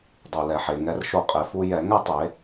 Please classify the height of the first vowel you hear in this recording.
mid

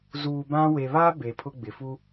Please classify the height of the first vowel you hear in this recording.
high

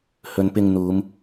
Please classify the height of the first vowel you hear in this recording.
mid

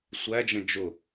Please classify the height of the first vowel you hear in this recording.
low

